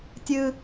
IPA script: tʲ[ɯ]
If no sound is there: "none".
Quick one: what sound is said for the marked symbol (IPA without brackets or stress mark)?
ɯ